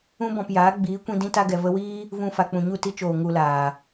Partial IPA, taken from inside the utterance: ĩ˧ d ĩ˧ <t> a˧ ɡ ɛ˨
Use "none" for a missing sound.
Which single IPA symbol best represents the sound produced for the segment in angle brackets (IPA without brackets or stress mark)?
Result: t